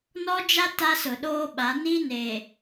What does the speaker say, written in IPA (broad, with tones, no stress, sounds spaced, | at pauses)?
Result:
n ɔ˦ d͡ʒ a˦ t a˦ s ʊ˨ ɗ oː˦ ɓ a˨˦ n i˦ n eː˨